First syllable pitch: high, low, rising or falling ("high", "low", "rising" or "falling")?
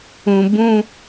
high